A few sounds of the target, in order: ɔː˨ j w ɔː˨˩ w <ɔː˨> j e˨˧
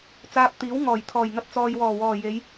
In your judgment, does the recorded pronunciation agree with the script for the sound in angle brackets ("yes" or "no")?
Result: no